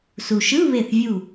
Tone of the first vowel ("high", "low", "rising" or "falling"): low